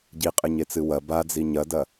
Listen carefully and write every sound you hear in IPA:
ɟ i qʼ ɨ ɲ e t͡s ɨ w ɐ b a d͡z i ɲ ɐ d ɐ

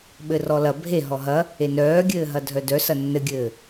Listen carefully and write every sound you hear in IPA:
ɓ ɘ r ɔ l ɐ bʱ e ɦ ɔ ɦ ɐ | e n œː ɡʲ ɘː ɦ ɐ dʱ œ d œ s ɐ nː ɘ ɡʲ ɘː

